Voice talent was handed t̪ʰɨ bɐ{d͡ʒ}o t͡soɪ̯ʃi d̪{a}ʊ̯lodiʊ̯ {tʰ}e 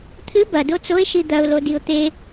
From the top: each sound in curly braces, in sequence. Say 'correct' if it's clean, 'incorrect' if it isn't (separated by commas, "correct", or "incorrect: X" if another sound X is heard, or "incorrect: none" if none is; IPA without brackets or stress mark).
incorrect: d, incorrect: ɐ, incorrect: t̪